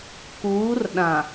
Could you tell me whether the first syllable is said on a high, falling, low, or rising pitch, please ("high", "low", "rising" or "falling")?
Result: rising